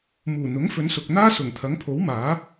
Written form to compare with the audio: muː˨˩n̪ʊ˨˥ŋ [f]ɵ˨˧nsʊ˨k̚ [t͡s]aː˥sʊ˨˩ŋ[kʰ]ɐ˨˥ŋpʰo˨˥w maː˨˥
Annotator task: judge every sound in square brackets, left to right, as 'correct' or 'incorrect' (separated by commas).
correct, incorrect, incorrect